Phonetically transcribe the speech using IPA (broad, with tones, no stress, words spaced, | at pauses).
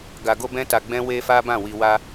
ɡa˧ɡo˦bɛ̃˦ta˧ ɡ͡bɛ̃˦we˦fa˦ bã˦˨wi˧ wa˦